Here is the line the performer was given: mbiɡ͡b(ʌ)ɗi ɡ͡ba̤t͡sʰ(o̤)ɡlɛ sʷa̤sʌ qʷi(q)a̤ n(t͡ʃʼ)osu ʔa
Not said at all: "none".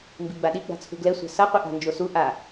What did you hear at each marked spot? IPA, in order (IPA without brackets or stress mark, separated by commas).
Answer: a, ṳ, ʔ, d͡ʒ